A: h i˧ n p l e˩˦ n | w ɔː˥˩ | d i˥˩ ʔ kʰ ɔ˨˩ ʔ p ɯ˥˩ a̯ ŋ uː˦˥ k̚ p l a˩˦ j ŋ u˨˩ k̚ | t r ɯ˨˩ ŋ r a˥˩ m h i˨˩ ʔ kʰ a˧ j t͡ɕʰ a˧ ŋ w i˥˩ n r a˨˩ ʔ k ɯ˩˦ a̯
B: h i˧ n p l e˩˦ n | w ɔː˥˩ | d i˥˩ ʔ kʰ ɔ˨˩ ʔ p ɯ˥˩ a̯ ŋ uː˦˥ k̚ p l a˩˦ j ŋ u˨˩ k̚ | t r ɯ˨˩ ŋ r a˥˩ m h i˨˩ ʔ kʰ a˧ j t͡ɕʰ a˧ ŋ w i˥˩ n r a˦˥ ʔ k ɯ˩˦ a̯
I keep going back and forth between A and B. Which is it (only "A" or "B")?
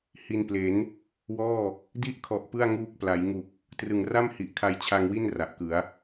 A